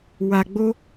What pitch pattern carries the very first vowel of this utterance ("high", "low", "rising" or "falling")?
high